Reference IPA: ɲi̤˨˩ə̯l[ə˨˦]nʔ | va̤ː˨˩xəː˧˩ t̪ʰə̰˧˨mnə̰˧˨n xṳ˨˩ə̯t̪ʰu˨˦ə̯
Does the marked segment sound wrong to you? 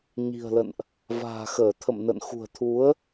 yes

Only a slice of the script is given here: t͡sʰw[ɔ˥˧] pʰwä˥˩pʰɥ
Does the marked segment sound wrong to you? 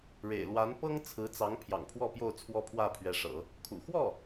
yes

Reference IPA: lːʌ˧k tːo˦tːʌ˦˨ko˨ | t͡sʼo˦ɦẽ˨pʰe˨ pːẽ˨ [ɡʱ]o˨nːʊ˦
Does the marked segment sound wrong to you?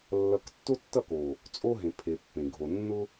no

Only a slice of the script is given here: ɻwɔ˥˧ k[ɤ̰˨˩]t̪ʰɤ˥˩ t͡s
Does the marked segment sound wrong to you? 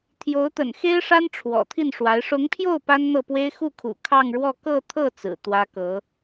yes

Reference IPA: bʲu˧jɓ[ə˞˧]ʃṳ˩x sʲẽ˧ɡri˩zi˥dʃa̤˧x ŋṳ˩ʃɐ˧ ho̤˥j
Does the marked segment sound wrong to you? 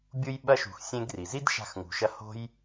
yes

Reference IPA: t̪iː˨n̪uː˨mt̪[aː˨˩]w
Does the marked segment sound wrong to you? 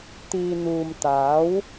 yes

